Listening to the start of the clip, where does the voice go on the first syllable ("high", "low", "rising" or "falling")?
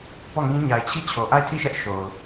falling